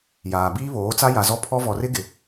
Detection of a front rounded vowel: absent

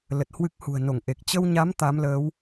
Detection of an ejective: absent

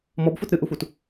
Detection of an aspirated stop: absent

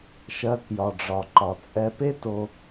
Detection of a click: present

